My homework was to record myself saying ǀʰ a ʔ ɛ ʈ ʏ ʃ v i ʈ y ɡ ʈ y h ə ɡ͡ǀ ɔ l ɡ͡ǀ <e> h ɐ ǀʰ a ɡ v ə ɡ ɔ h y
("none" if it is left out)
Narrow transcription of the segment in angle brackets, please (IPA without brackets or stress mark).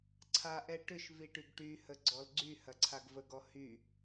y